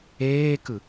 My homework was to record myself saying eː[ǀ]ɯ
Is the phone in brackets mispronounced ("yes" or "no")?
yes